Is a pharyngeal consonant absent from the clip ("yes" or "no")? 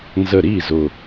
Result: yes